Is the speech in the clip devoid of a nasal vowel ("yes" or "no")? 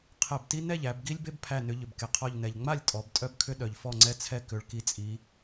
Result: yes